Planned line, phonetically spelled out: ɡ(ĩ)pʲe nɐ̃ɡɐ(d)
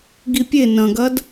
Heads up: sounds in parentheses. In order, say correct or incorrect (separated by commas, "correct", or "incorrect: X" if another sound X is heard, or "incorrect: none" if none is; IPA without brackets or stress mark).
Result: incorrect: i, correct